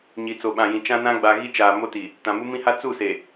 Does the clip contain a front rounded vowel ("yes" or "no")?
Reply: no